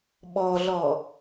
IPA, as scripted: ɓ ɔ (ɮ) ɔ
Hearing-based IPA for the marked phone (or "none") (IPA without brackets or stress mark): ɮ